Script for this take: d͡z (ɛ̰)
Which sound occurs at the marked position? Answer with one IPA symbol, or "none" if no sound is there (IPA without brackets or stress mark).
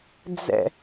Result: ɛ̰